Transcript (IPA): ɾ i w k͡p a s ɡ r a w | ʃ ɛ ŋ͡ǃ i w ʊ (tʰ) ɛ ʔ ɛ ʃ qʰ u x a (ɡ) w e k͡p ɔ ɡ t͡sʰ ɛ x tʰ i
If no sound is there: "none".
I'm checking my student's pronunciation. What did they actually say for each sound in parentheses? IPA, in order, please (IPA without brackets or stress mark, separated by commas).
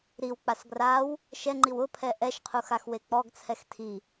pʰ, x